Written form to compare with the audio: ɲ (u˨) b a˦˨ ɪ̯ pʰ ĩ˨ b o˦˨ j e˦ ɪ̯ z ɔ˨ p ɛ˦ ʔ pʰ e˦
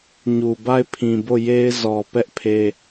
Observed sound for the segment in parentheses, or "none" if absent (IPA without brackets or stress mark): u˨